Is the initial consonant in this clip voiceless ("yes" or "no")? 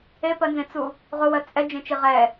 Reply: yes